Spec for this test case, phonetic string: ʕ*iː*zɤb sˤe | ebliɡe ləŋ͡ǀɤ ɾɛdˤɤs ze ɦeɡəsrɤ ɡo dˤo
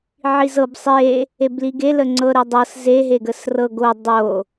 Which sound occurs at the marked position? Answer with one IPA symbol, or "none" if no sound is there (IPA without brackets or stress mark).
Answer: i